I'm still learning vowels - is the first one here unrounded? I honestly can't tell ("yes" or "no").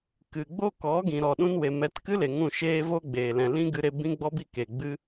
yes